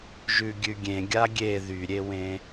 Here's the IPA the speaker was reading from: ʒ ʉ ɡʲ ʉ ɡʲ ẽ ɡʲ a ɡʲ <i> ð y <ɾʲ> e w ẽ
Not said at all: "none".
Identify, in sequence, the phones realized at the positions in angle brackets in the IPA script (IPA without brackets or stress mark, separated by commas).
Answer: e, ɾʲ